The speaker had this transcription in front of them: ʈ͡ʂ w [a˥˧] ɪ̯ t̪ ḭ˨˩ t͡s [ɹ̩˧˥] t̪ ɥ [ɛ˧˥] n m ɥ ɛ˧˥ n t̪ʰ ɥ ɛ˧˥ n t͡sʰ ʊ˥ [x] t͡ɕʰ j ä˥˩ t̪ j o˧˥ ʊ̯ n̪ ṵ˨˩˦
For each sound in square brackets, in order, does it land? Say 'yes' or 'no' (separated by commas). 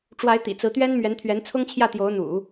no, yes, no, no